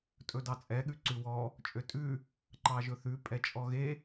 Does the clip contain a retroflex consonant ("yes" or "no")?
no